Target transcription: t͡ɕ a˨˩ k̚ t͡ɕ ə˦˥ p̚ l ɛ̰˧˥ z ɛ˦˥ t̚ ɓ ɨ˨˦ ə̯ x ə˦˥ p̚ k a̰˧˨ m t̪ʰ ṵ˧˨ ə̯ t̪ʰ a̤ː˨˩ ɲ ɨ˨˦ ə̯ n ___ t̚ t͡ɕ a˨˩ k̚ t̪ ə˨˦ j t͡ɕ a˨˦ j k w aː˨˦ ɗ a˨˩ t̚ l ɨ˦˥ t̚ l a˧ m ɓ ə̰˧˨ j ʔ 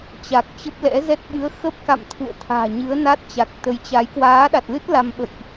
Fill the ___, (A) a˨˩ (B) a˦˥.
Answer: B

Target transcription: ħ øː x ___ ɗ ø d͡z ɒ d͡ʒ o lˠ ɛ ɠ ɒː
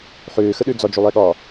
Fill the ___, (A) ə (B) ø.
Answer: A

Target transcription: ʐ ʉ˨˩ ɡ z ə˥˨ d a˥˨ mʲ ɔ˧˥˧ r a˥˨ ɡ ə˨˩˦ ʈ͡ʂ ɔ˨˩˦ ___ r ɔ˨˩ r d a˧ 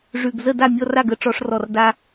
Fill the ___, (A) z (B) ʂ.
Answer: B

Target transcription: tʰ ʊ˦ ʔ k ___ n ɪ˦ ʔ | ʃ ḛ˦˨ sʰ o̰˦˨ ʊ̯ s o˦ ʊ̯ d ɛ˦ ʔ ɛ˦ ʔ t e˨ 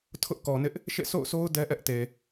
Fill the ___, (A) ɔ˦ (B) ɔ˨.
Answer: B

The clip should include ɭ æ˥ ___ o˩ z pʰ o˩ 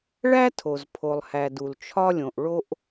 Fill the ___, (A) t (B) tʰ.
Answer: B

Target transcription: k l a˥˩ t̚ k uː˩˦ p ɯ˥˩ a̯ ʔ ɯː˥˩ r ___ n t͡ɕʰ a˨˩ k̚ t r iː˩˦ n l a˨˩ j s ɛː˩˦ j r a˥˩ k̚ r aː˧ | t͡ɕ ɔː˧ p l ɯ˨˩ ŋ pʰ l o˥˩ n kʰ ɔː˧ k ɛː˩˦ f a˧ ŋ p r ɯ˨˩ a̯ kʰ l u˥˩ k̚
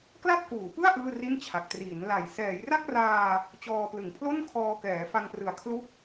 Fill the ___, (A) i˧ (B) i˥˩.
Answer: B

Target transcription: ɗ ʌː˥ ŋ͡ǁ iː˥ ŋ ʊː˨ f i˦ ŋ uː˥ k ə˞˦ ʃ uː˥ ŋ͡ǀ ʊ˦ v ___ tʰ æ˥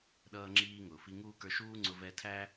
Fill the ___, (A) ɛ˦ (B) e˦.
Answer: A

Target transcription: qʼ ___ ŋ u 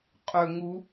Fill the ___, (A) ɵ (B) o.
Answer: A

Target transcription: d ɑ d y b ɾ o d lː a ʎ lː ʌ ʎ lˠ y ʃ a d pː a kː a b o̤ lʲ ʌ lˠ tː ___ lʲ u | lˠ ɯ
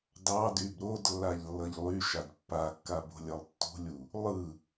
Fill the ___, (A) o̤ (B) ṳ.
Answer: B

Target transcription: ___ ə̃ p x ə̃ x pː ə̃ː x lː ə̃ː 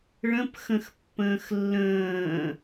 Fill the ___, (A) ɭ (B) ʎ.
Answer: A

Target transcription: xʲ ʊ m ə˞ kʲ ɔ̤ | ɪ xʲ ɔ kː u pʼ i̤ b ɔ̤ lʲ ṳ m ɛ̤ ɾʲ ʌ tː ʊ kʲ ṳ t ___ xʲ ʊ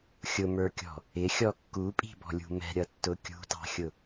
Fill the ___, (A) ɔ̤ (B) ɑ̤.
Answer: B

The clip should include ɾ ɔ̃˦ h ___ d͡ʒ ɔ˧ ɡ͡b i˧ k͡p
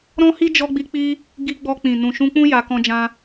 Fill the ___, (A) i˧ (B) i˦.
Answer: B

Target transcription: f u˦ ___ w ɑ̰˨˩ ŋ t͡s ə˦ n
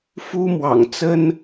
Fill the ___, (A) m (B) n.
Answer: A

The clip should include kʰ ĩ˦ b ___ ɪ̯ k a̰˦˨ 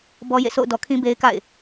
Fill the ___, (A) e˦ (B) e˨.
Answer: A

